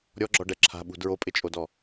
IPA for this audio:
ɾʲ ɔ ɡ͡ǁ ɔ ɖ ɛ ǁʰ a̤ ɓ ṳ d ɹ o pʼ ɪ t͡ʃʼ o d ɔ

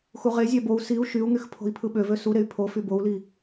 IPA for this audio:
x u ʁ e zʲ æ b o u̯ s i u̯ ʃ y u̯ ŋ y x pʰ o̤ i̯ pʰ ɯ ɓ ø v ø s u ɾ e y̯ pʰ o f y b o u̯ l i

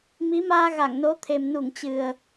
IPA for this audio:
m i˨˦ m aː˧ ɣ a˧˩ ŋ n o˨˦ t̪ʰ e˨˩ m n u˧˩ ŋ t͡ɕ ɨ˨˩ ə̯

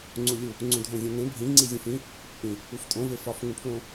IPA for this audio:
ŋ͡ǀ u lʲ u | ŋ͡ǀ ũ dʱ õ zʲ æ̃ n ẽ bʱ ĩ ŋ͡ǀ i zʲ ũ f ĩ | ʔ ĩ | u f tʼ õ v e f ɒ f ŋ ũ pʰ l õ

